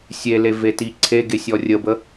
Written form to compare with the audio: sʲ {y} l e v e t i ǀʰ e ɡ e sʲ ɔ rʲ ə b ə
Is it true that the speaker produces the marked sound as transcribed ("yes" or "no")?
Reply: no